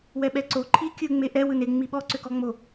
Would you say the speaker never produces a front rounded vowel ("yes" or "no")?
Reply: no